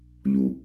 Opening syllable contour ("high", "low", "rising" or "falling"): low